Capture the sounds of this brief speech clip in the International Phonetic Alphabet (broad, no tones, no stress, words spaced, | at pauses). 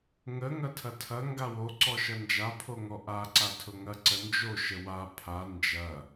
ŋə ŋɐtʰɐtʰɐ ŋɡawo ǀɔʃɐnd͡ʒa pʰoŋɔʔa ǀatʰʊŋɐ ǀənd͡ʒo ʃəwa pʰa nd͡ʒɐ